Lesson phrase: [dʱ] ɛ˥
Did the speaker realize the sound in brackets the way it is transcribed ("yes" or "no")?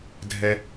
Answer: yes